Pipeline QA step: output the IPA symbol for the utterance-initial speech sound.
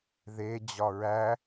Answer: ð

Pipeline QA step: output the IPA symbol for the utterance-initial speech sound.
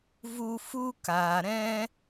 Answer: v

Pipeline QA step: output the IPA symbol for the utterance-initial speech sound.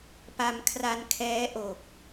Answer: p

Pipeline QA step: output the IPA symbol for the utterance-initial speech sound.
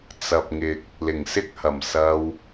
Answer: t͡s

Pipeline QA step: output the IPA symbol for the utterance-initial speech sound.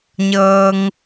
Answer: ɲ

